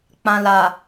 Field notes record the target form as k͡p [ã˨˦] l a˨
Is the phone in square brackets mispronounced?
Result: yes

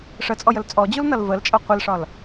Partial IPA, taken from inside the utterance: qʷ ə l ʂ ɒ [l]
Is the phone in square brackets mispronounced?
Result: no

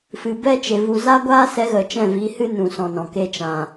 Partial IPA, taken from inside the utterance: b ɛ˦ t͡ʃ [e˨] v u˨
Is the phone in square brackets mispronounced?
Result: no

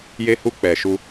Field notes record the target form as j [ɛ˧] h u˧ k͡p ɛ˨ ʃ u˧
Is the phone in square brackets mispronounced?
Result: yes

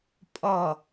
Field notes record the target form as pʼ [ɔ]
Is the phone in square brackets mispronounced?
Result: no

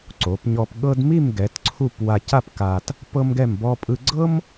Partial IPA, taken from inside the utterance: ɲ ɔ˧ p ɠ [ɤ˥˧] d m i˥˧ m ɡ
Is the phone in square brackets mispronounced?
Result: yes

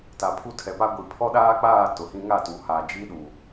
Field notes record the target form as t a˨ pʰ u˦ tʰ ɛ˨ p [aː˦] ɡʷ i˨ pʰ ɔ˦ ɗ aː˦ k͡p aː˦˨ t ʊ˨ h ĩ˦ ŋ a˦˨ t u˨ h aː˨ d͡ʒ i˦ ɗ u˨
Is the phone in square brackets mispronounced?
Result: yes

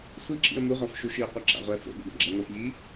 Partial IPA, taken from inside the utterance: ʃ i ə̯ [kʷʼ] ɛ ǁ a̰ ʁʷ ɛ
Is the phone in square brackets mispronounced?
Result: yes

